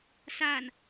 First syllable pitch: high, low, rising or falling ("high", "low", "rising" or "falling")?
low